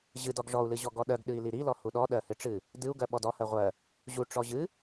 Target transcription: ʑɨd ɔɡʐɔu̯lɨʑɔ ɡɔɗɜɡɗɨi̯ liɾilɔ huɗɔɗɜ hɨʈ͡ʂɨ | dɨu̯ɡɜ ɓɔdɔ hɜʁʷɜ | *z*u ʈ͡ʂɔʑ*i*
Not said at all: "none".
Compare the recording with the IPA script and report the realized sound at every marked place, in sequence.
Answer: ʑ, ɨ

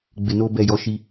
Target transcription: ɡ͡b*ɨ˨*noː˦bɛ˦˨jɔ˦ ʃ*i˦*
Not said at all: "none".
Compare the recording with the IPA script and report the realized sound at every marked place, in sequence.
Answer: ɪ˨, i˦

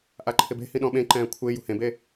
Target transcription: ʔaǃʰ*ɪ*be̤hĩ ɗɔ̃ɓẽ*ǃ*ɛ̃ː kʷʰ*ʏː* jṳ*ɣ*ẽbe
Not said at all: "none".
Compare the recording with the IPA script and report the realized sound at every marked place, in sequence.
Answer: ɪ, ǃ, ɪː, h

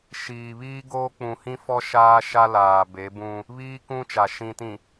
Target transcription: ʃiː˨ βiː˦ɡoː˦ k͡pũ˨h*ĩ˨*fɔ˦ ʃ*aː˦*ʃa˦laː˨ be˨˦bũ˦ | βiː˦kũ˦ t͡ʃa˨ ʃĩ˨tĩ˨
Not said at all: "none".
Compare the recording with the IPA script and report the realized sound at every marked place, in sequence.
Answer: ĩ˦, aː˦

